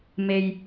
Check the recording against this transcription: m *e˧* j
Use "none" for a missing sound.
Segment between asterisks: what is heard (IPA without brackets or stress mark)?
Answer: e˧